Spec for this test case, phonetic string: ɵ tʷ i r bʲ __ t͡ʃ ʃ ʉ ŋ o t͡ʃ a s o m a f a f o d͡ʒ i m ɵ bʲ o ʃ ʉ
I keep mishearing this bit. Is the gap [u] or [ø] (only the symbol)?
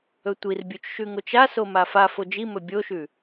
u